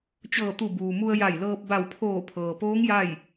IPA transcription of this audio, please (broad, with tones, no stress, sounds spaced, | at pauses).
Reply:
t͡ɕ ɤː˧˩ t̪ u˧˩ b uː˩ m u˧ ə̯ j a˧˩ j l ɤː˧ p̚ b a˧˩ w pʰ oː˧˩ pʰ ɤː˩ p oː˧˥ ŋ j a˥˨ j